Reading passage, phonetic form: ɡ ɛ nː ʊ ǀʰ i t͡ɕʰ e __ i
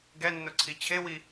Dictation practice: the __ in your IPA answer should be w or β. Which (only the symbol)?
w